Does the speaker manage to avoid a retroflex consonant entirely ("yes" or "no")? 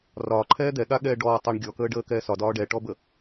no